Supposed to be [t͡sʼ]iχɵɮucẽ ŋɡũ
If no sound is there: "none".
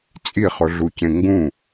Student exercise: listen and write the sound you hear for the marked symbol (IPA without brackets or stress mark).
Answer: t͡sʼ